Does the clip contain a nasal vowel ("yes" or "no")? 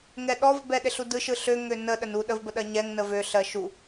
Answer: no